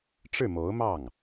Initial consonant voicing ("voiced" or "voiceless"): voiceless